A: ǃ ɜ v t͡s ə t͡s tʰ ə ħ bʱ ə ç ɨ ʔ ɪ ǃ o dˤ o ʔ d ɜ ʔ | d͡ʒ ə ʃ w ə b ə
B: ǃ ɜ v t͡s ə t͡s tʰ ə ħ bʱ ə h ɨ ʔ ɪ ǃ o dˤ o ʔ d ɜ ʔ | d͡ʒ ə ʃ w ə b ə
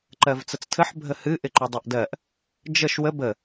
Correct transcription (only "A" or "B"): B